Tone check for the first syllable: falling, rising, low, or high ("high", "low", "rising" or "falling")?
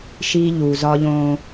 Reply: high